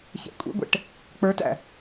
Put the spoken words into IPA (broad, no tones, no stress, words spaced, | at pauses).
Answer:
çɛ̰kʷʼḭɡʷɛ̰ʈ | k͡pə˞tæ̰